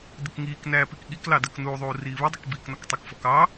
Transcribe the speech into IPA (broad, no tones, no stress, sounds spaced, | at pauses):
d ɪ k ŋ iː k n æː p i k ɠ i k l ɑ d ɜ k n uː ðˤ uː r iː β ɪ dˤ ə k b iː k n ɒ k tˤ ə k f ɔ k ɑː